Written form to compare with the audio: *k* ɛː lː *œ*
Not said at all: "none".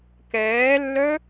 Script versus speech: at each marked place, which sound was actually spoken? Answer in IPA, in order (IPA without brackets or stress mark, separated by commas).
k, œ